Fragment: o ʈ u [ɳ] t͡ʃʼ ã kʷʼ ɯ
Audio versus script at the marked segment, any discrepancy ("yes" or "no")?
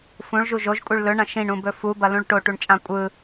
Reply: no